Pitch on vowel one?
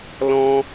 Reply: high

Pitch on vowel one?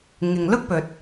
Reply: low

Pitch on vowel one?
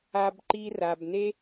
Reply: low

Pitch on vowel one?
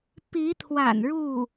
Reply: rising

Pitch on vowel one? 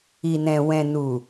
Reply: low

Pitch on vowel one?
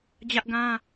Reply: high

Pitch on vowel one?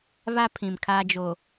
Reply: high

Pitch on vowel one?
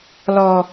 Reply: low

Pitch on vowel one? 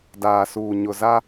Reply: low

